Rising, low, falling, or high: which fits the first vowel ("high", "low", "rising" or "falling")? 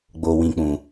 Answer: low